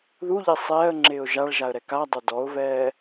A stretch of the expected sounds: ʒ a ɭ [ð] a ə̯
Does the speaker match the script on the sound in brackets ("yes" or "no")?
no